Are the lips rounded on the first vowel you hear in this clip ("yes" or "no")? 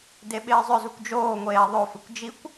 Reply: no